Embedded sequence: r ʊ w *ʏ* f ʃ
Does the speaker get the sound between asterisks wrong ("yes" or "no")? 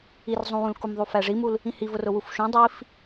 yes